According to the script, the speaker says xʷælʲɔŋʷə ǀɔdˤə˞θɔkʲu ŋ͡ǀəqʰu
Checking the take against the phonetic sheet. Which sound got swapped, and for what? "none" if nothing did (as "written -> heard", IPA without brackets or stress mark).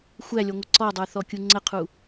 none